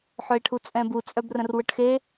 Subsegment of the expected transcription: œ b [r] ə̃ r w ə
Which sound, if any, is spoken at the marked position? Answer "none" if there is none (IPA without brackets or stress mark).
r